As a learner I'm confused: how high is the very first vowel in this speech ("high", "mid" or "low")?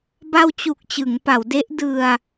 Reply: low